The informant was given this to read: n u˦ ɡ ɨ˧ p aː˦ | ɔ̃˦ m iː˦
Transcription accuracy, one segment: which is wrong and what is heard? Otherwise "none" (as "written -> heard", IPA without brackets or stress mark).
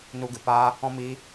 none